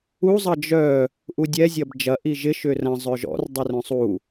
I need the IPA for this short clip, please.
u zˤ ɐ d͡ʒ œ | ʔ u dʲ ɛ zʲ ɐ b d͡ʒ ɐ ʔ i ʒ ɪ ʃ ʏ r ɐ̃ zˤ œ ʒ ɔ̰ r dˤ o r œ̃ sˤ u

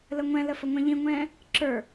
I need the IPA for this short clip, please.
l ə ŋʷ ɛ̃ l ə f ə ŋʷ ɛ̃ ʎ ĩ ŋʷ ɛ̃ː | ǁ ə˞

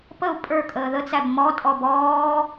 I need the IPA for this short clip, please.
p ə u̯ pʼ ə˞ kʼ əː ð ə t͡s æ b m ɔ tʼ ɔ b ɔː

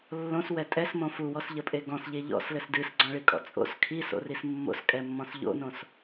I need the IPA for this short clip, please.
lː õ s w ɛ tʼ ɛ s m õ f u w ɔ s ʎ ɐ pʼ e ɡ ɔ̃ s ʎ e ʎ ɔ̰ s l ɘ s d ɨ s ɡ͡ǀ ɔ̃ ɭ i kʼ ɔ̰ t͡sʼ o̰ s kʰ i s o̰ r i s mː o̰ s kʼ ɛ mː ɔ̃ s ʎ o̰ n õ s

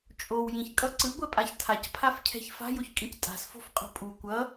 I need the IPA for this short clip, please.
t͡ʃʼ o w j ĩ ç kʼ ʌ ǀ ɯ ɡʷ ɛ pʼ a ç tʰ a c pʰ a f cʰ ɛ̤ ç f a̤ j o ç kʼ ĩ c tʼ a̤ s f o̤ f qʼ o̤ pʼ u kʷ ʌ

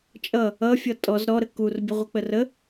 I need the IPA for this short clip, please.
t͡ʃʼ ʌ | ʌ fʲ ʌ tʼ ɔ z ɾ ɔ ɾ ə k u r bʲ ə ʁʷ ʌ k͡p ə r ə

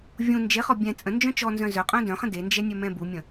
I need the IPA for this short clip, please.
vʲ ũ n d͡ʒ e χ ɔ bʲ ɛ̃ t͡sʼ ə̃ n d͡ʒ œ̃ t͡ʃ ɔ n z œ̃ z œ qʼ œ̃ d œ̃ χ ə̃ d e n d͡ʒ ɛ nʲ œ m ɛ̃ b u mʲ ə̃

